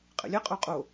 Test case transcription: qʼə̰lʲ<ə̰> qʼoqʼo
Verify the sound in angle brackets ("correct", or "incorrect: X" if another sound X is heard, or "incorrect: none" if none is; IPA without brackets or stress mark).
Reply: incorrect: ə